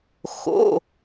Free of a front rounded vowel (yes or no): yes